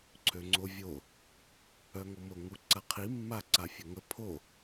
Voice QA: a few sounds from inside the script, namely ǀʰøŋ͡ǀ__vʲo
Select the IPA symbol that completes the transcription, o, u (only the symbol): o